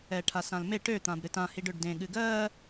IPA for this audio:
ɛ ʈʰ a s ã l m e ʈ ø t̪ ã b ɾ ɨ t ã h i ɖ ø ɖ d ẽ ɠ ɨ ɡ ɜ

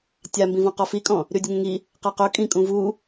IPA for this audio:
tʲ a m b ĩ v ɔ̃ q ɔ f i kʼ ɔ̃ | ɾ y dʲ ə ŋ ə̃ ŋ i | q a q ɵ kʼ ĩ kʼ ũ v u

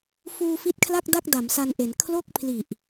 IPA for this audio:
f uː˧ f i˦˥ t̚ kʰ l a˥˩ k̚ d a˥˩ k̚ d a˩˦ m s a˧ n ʔ e˩˦ n kʰ l o˥˩ k̚ pʰ l i˨˩ ʔ

